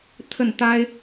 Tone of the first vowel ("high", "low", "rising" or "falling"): falling